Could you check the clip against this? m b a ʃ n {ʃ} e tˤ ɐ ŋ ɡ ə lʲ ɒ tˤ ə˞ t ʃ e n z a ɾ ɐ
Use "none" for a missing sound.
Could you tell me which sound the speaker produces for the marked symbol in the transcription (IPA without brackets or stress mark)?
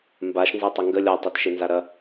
z